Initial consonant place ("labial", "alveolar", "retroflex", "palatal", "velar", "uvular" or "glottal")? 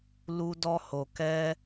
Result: alveolar